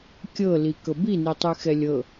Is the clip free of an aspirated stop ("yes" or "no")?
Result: yes